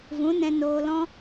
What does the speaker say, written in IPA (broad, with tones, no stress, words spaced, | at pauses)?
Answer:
vũ˨˦ nɛ̃˧noː˧lɔ̃˦